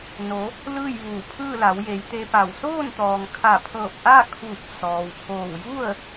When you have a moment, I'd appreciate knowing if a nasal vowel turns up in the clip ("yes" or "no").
no